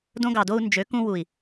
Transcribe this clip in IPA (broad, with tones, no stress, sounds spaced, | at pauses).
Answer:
d õ˧ ɡ ɑ˨ d o˧ u̯ n d͡ʒ ø˨˦ k ũ˧ w u˨ i̯